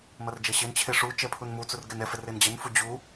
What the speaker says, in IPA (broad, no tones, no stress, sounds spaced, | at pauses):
m ʌ r d͡ʒ ɛ ɕ e n t͡ɕʰ e ʂ u t͡ʃ ɛ pʰ u n m u t͡s u r ɡ ɛ n ɛ f ɛ r e n d͡ʑ ɛ n f u d͡ʑ u